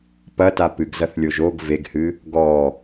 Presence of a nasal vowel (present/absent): absent